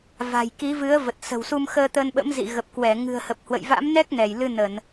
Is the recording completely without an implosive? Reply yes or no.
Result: no